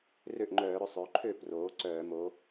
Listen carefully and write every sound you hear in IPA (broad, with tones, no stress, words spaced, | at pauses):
rø˥˩ʔŋ͡ǃœː˧˩˧ɾʏ˩˧ sˤø˩˧ ǃʰø˥˩ proː˩˧ ǀœː˧˩˧ mo˩˧